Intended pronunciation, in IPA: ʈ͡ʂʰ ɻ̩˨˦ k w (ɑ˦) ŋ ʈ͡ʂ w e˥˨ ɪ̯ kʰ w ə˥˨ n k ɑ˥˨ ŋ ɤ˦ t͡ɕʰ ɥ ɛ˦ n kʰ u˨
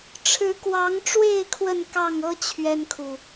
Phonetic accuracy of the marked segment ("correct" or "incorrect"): incorrect